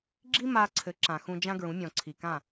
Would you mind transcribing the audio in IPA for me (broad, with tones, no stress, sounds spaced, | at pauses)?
ɡ͡ǁ i˥ m a˧ ǀʰ ɘ˩˥ ǁ ã˩ x ũ˧ d͡ʒ ã˥ ɡ ɹ ũ˩˥ mʲ ɔ̃˩ ǀʰ i˩ k ã˥˩